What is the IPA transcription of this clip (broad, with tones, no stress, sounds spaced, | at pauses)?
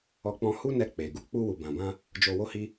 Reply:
ɔ˧ k͡p ɔ̃˧ h u˦ n ɛ˧ k͡p e˨ ɡ u˧ k͡p u˧ w u˨ b ã˨ b ã˧ | d͡ʒ o˧ w o˦ h i˦